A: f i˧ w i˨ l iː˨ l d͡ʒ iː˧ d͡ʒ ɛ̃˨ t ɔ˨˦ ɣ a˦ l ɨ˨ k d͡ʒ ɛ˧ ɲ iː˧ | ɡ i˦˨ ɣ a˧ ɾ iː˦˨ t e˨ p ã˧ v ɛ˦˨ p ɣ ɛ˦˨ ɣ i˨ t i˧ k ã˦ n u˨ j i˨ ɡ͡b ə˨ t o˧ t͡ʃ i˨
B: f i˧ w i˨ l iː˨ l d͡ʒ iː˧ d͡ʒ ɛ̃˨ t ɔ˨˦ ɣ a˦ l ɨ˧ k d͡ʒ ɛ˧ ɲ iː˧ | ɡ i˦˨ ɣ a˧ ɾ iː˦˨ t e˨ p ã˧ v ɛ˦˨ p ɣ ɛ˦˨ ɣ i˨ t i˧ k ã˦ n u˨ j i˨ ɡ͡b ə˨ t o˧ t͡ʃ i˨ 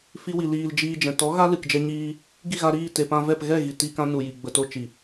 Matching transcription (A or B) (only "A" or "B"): A